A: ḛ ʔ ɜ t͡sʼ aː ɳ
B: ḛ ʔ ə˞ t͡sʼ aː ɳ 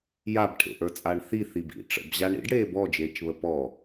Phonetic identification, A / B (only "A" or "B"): B